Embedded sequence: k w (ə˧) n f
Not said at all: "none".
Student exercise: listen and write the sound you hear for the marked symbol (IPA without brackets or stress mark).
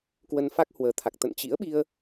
ə˧